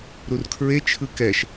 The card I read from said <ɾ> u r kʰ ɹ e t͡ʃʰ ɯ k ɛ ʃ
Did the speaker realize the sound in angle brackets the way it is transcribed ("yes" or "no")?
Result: yes